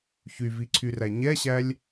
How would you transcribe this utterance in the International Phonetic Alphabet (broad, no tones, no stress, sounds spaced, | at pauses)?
ç y v i ǀʰ y r æ ɲ ɛ ɕ æ lʲ